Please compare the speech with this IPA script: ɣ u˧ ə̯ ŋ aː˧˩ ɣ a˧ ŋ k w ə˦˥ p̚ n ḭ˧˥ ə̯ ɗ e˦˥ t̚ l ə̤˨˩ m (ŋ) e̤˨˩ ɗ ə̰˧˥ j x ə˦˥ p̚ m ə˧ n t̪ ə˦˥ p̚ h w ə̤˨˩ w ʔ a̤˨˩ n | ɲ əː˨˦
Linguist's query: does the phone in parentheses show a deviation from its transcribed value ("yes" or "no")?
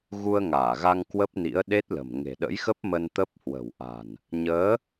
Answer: no